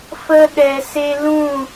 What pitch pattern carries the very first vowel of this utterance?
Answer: high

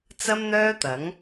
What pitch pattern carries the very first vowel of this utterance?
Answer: high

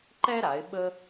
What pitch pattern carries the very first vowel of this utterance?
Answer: high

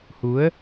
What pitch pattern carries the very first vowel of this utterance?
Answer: rising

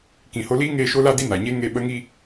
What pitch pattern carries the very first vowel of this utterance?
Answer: low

